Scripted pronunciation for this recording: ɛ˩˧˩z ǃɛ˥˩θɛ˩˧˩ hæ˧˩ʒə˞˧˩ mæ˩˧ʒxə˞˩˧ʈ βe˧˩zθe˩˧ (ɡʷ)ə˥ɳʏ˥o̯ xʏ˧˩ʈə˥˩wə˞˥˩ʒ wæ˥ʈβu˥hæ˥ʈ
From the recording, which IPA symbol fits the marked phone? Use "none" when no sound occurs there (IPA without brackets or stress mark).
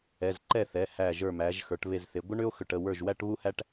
ɡʷ